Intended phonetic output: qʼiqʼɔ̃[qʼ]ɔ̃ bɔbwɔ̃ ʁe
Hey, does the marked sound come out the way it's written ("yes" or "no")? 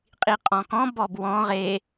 no